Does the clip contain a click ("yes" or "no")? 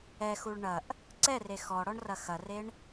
yes